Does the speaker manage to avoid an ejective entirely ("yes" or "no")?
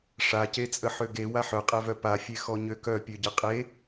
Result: no